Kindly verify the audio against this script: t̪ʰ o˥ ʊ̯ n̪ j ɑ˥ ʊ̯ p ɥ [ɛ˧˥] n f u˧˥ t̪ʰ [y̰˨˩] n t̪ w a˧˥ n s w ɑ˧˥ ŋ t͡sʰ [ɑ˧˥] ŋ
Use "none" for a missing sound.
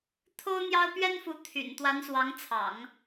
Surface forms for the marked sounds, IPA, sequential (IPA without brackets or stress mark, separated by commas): ɛ˥, y̰˨˩, ɑ̰˨˩˦